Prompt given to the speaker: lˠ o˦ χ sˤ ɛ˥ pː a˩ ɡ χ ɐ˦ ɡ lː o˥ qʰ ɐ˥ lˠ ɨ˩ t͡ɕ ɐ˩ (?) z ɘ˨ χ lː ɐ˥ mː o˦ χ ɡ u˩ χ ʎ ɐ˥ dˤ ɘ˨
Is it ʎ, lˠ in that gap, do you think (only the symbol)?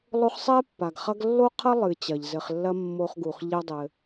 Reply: ʎ